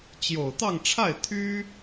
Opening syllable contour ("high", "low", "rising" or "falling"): low